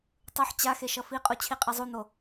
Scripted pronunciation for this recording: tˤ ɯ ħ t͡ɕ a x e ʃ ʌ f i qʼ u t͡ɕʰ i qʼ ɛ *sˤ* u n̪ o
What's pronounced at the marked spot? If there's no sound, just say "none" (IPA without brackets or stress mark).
zˤ